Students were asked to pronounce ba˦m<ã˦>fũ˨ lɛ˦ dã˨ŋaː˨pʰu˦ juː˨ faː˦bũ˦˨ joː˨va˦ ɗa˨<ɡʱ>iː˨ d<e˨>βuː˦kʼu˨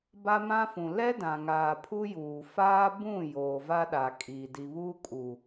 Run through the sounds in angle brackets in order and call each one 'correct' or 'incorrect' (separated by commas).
correct, incorrect, incorrect